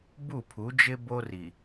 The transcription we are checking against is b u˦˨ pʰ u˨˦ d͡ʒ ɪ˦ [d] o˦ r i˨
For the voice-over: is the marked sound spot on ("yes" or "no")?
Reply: no